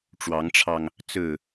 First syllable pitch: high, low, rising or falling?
rising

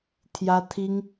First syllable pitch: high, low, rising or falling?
high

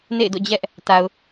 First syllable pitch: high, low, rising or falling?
falling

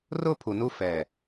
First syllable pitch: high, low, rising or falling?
high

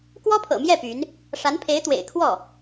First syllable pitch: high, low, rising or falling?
high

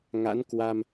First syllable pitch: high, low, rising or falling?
rising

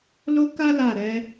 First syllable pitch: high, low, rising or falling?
high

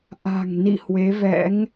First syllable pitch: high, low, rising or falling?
low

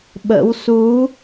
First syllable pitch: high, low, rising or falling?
rising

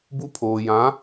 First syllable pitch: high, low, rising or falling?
high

